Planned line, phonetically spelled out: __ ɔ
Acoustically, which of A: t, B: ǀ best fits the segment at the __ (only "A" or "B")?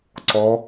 B